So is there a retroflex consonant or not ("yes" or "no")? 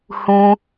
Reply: no